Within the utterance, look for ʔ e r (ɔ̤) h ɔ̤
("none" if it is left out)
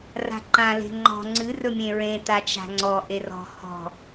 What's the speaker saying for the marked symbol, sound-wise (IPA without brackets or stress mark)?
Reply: ɔ̤